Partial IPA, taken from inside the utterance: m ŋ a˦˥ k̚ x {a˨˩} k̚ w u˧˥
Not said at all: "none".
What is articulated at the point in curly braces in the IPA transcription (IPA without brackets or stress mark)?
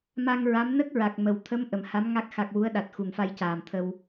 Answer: a˨˩